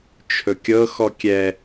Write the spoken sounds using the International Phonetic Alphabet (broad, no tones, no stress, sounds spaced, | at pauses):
t͡ʃʰ ɵ kʲ ɤ x ɔ kʲ ɛ